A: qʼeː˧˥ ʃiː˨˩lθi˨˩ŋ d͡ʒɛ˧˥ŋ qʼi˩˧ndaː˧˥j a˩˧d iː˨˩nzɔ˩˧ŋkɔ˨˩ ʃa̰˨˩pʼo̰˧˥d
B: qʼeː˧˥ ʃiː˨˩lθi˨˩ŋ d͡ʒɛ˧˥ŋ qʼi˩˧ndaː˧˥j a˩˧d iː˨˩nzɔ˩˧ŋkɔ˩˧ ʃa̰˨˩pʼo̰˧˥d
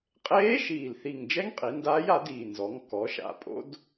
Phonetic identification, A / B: B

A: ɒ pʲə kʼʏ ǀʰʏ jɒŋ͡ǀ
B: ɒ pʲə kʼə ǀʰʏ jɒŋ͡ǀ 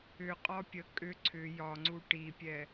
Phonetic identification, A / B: A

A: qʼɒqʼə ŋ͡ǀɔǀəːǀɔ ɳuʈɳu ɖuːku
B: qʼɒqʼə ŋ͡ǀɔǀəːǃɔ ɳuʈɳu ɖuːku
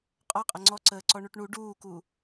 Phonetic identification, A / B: A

